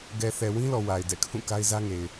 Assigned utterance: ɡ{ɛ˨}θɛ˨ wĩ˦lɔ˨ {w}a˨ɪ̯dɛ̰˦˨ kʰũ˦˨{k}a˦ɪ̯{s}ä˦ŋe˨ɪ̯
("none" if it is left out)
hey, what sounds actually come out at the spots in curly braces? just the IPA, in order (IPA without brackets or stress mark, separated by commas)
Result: ɛ˨, w, k, z